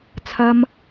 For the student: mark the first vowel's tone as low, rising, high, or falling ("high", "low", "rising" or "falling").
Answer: high